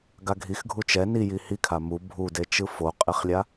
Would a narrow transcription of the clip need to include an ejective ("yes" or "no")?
yes